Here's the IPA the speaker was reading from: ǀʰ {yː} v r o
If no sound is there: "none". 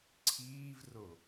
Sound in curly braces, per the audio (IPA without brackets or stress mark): iː